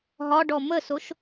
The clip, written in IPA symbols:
ɦɒɖɔ məsoʃ

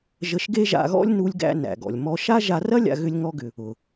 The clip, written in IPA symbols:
ʒə˧ʃɡe˥ʒa̰˧ɣɔ̰˥lʲ nu˧lʲ ɡæ̰˧ næ̰˩ɡɔ̰˩lʲ mɔ˧ʃa˥ ʒa˧rɐ˥ lʲa̰˧ɣʏ˧lʲŋɔ˧ɡʏ˩ | ʊ˩

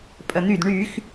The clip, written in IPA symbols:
pʼən̪yd ɳyx

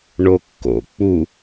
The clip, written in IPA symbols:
ɳokːo̰ k͡pu

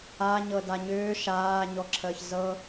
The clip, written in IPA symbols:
aɲɤda ɲʏː ʃaːɲɔǁʰəːç zɤ

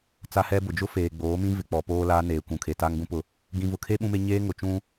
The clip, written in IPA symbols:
t͡sa˦hɛ˦bʊ˨ d͡ʒʊ˦feː˨ɡ͡boː˨˦mĩ˦ vɪ˨k͡pɔ˨ poː˦laː˦neː˨kʷũ˨ kʰe˨ta˦ŋɡũ˦pʊ˦˨ | ɡĩ˨vʊ˨kʰe˦ ɓũ˦me˦ ɲeː˦ŋʊ˨t͡ʃũ˦

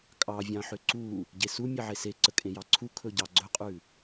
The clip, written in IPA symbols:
kʼɑvʲɑ̃ ħʏǀu | ɟesu mʲeʕese ǀəkʼẽjɑǀʰu kʰɵɟɑɡ͡ǀɵqʼʉ

